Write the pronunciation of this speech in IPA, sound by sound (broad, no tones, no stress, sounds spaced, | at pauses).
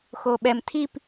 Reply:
x o ɓ ɛ m tʰ i p